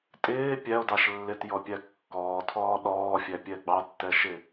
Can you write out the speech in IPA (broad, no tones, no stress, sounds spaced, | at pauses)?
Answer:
tʼ ɪː pʲ æ o̯ d ɑ ʃ lː ɪ t j ɔ pʲ æ kː ɔː tʰ ɔː ɗ ɔː fʲ æ pʲ ɛ ɡ͡b ɑ tː ɛ ʃ ɪ